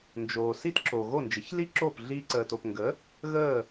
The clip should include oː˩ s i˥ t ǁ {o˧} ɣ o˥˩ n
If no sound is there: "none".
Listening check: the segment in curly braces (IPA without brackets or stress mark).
o˩